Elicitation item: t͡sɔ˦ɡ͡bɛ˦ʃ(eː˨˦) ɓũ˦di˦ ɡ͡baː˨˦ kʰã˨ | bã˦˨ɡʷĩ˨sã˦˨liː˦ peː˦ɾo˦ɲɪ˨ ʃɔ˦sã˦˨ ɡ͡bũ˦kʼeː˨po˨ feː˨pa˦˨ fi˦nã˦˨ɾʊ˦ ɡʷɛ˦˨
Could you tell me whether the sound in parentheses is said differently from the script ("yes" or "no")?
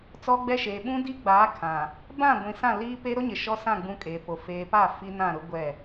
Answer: yes